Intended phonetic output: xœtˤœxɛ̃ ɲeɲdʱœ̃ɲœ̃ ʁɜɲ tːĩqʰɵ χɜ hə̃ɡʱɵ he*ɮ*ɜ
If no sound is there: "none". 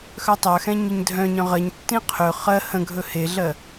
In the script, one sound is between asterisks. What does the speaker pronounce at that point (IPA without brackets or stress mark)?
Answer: ɮ